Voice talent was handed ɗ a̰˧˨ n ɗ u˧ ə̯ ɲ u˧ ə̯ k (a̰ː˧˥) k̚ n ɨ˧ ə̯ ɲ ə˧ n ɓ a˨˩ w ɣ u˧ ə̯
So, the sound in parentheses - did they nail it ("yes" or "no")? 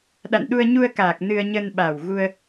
no